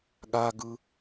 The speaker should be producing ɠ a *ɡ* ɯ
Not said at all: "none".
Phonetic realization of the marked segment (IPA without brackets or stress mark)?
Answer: ɡ